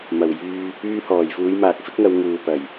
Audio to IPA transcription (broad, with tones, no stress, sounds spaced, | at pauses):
m ɐ˨˩ w j yː˧ | yː˧ h ɔː˨˩ j f uː˨˧ j m aː˨ k̚ f ɪ˥ k̚ ŋ ɐ˨˧ w ŋ uː˨ p ɐ˨˩ j